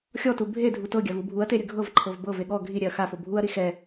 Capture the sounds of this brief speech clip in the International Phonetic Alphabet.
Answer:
xʲ ɔ t u bʱ e dʱ u t ɤ ɡʲ a v u bʱ u ɐ̯ t e ɾʲ ɯ ɡʱ ɤ v ǃʰ ɤ v b ɤ v e ɠ ɔ ɡʱ i ɾʲ ɛ ɐ̯ x a f o bʱ u ɐ̯ ɾ i x ɛ

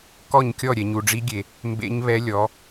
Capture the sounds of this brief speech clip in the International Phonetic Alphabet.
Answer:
k ɔ˥˨ ɲ kʲ ɔ˥˨ ɾʲ ɛ˨ ɲ u˨ ɖ͡ʐ i˦˥ ɡʲ e˨ | m b ḛ˦˥ ɲ β ɛ˦˥ lʲ ɔ˨˥

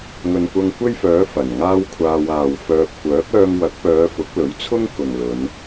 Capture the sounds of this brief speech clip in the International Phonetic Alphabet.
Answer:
ŋ ɵ˨ n kʷ ɐ˧ ŋ kʷ e˥ j f œː˨˥ f ɐ˨˩ n ŋ aː˥ w kʷʰ aː˧ w aː˨ w f œː˧ p̚ kʷ œː˨˥ k̚ œː˧ ŋ w ɐ˨˥ k̚ p œː˨˧ f ʊ˨˥ k̚ l ɵ˨˥ ɥ t͡sʰ ʊ˥ ŋ k ʊ˨ ŋ l ɵ˨˧ n

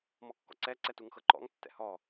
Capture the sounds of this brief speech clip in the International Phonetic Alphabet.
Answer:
m ɔ kː ɔ̰ ǀ ɛ ǀ ɛ t u ŋ x ɤ ǃ ɔ̰ ŋ tː ɛ̰ h ɔ

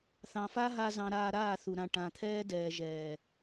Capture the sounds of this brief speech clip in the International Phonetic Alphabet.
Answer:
θ ɑ̃˨ f a˦ ɦ a˧ z ɑ̃˧ ɾ aː˧ ɾ aː˦˨ θ u˨ ɾ ã˨ ʈ ã˨ t̪ʰ ɛː˦ d ɛː˨ ʒ ɛː˨

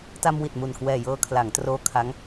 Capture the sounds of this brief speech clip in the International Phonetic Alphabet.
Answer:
t a˧ m w i˨˩ t̚ m u˨˩ n k w ɛː˨˩ j ɤː˧ kʰ l a˩˦ ŋ t r oː˦˥ kʰ a˦˥ ŋ

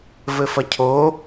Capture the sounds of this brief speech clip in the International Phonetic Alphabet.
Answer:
v ɘ f ɐ cʰ o

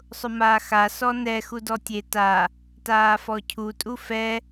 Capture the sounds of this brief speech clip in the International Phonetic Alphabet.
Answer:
sˤ ʊ m aː x a s ɔ n ɛ x u d ɔ tʲ e t a | t aː f ɔ cʰ u tʼ u f ɛ

